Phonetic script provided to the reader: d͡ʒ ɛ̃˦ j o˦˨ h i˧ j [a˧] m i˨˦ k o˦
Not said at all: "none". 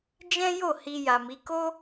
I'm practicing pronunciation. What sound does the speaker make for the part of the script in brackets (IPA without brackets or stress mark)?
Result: a˨